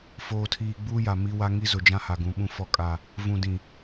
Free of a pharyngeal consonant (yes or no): yes